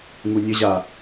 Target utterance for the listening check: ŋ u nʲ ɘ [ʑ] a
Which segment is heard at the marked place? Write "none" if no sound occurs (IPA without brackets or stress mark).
ʑ